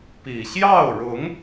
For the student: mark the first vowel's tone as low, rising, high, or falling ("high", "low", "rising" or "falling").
low